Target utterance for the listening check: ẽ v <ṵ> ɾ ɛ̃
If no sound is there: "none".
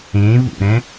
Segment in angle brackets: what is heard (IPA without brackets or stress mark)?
ṵ